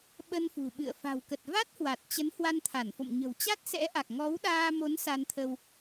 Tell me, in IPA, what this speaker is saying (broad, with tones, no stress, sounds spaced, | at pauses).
ɓ ə˧ n f ṳ˨˩ ɓ ɨ̰˧˨ ə̯ f a̤˨˩ w k ə˨˩ t̚ v a˦˥ t̚ h w a˨˩ t̚ t͡ɕ ə˨˦ n h w a˧ n t̪ʰ a˧˩ n f o̰˧˨ m ɲ ə̤˨˩ w t͡ɕ a˦˥ t̚ s ɛ̰˧˥ ʔ a˨˩ k̚ ŋ ɔ˨˦ w ɗ aː˧ m o˨˦ n s a˧ n t̪ʰ ə˧ w